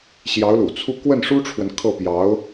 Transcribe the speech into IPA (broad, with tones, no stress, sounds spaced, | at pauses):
ɕ j ɑ˧˥ ʊ̯ l ṵ˨˩ t͡sʰ u˥˧ k w ə˥˩ n ʂ u˥ ʈ͡ʂʰ w ə˨ n kʰ ɤ˥˩ p j ɑ˧˥ ʊ̯